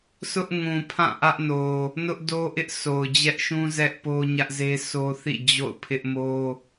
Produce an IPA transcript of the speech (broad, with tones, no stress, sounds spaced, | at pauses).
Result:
s ʊ˦ ʔ ŋ ũ˨ pʰ ã˦˨ ʔ ä˦ ʔ n o˨ | n ʊ˦ ʔ d o˦ ʔ ɪ˦ ʔ sʰ o˨ ʊ̯ d͡ʑ ɛ˦ ʔ ʃ ũ˦ z ɛ˦ ʔ p o˦ ɲ ä˦ ʔ z e˦ s o˦ θ ḭ˦˨ d͡ʑ o̰˦˨ ʊ̯ pʰ ɪ˦ ʔ m o˦